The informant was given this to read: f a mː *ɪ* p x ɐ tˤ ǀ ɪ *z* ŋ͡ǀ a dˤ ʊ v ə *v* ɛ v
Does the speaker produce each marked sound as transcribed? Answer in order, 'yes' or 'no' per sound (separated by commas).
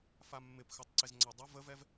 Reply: yes, yes, yes